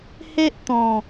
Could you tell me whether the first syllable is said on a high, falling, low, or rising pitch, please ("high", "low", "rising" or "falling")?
high